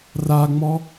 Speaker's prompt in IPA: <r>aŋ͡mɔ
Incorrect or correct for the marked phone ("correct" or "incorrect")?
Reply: correct